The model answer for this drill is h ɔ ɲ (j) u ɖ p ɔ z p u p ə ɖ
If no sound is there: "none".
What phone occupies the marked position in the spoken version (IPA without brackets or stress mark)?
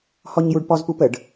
j